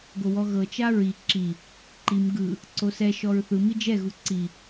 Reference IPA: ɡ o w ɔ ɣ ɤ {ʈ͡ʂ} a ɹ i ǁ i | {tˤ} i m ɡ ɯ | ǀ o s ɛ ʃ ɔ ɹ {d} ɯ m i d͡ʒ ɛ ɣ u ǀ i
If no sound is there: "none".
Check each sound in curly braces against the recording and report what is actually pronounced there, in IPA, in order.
t͡ʃ, ǃ, θ

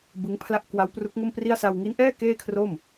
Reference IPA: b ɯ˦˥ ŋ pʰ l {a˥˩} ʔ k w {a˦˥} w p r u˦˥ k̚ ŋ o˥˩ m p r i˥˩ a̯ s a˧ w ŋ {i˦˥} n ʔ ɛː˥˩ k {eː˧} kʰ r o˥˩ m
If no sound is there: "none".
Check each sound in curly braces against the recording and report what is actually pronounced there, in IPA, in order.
a˥˩, a˦˥, i˦˥, eː˥˩

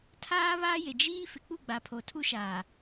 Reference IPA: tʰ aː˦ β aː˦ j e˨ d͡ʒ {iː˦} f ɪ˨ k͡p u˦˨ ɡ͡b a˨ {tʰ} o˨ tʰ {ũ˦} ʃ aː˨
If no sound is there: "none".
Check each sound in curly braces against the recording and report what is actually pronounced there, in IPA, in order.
iː˦, pʰ, u˦

